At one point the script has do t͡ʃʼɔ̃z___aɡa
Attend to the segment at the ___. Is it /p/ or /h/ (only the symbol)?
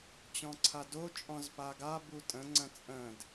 p